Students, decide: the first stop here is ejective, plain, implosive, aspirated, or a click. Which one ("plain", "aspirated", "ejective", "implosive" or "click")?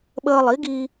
implosive